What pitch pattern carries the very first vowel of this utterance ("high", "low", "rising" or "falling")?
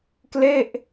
falling